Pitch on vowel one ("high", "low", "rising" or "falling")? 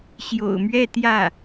low